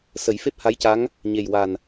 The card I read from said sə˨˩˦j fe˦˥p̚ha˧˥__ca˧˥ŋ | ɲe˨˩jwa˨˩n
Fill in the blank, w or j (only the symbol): j